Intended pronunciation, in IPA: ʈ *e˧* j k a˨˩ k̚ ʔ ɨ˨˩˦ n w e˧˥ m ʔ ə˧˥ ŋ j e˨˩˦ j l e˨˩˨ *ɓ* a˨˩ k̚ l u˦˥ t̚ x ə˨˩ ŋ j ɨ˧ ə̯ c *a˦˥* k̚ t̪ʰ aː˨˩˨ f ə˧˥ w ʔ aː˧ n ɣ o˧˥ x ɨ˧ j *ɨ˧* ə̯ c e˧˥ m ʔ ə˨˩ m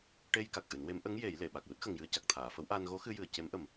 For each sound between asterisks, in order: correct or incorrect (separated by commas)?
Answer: correct, correct, incorrect, incorrect